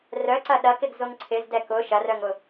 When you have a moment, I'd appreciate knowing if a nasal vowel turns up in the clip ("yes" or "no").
no